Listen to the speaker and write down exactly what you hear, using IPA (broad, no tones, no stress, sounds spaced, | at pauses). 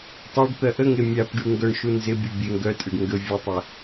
tˤ a ɖ t̪ ɜ ʔ ə ŋ e mʲ a p ɖ y ŋ ɡ œ ɳ ʃ u n z ɪ bʲ u bʲ e ŋ ɡ œ tʼ ɪ ɖ ŋ ɡ ə vʲ ə tˤ ə